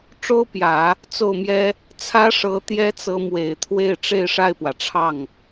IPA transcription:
ʈ͡ʂ o˥ ʊ̯ p j ä˨˩˦ | t͡s o˥˩ ʊ̯ m j ɛ˥ | t͡sʰ ä˥ ʂ ɤ˧˥ t̪ j ɛ˥ t͡s ɤ˧˥ m w e˨˩ ɪ̯ t̪ʰ w e˥˧ ɪ̯ ʈ͡ʂ e˥˧ ɪ̯ ʂ a˥˩ ɪ̯ p w ä˩ ʈ͡ʂʰ ɑ˥˩ ŋ

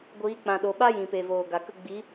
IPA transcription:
ɡʷ iː˨˦ k͡p ã˨ ɗ o˨ ɓ a˦ j ĩ˨ p e˨ v oː˨ ɡ a˨ k ə˧ ɡ͡b i˨˦

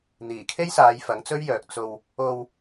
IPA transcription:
n̪ iː˨˩ kʰ e˥ j s aː˨˧ j f ɐ˨˥ ŋ t͡s ɵ˥ ɥ j œː˨ k̚ t͡s o˧ w | o˧ w

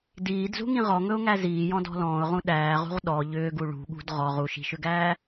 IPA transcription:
d iː d z ṳ ŋ ĩ ʁ ɔ ŋ ɵ ʊ̯ ŋ æ z iː j ɔ̃ d ɔ̤ l ɔ̃ː ʊ̯ ʁ ũ ɗ æː ʁ ṳ ʁ ɗ ɔ ʎ ʏː ɡ u ɭ ṳ ɠ ṳ d ʁ ɔ ʁ u ʃ i̤ ʃ ʏ ɡ æː

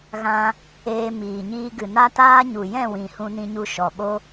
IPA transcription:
ɣ ã˦ | eː˧ m iː˨ ɲ iː˧ ɡ ɨ˨ n a˦ t aː˦ ɲ u˨ j ɛ̃˦˨ w ĩ˨ h ũ˧ n ĩ˧ ɲ u˧ ʃ ɔ˨ ɓ o˦

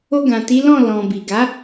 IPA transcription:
o˧ ɡ ã˨ t i˨˦ l ɔ̃˦˨ l ɔ̃˨ b i˨ ɡ a˨˦

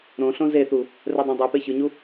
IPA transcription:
ɾ õ ɬ õ z e θ u | r ɛ dˤ õ dˤ i p e ç ɯ ɲ u

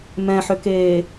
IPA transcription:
m ɛ̃ ħ ʏ k eː

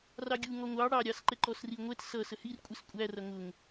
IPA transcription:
r ɑ ɡʲ u ŋ ɔ ŋʷ ɑ ɽ ɑ ɾʲ ɑ s ǃ ɛ ǃ ɔ s r i ŋʷ ɛ t s ʌ s ə h i r kʷʼ ɪ s kʷʼ æ r ʌ ŋ ʊ ŋ

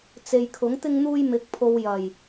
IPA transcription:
t͡s e˨ j kʰ ʊ˨˥ ŋ t̪ ɪ˥ ŋ n̪ uː˥ j m ɪ˧ k̚ pʰ o˧ w j ɐ˨˩ j

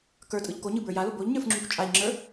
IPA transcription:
k ə˞ tʼ ɯ ʎ k o ɲ ɯ b ə˞ j a l o b o ʎ ɲ ə˞ f ŋ͡ǁ u kʷ t͡ʃʼ a ʎ ŋ͡ǁ ə˞

